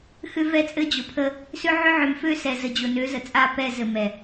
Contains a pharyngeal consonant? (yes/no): yes